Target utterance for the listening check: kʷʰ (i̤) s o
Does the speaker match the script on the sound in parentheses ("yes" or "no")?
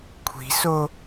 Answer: yes